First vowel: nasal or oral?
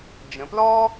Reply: nasal